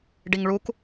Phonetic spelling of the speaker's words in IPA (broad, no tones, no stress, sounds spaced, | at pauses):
ɖ i ŋ ɭ u k